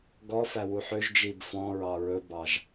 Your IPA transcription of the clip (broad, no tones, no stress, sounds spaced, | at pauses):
ɡ ɔ f æ w u ħ ø ʒ d͡ʒ i b f ɔ̃ ɹ ɑ ɹ ɵ b ɑ ʒ